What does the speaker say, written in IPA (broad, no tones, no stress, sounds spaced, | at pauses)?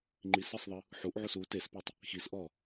ŋ͡ǃ i s ɯ sˤ ðˤ ɯ | ħ u ʔ ʕ u s u t e s p ɛ tˤ | x i s ʔ ɔ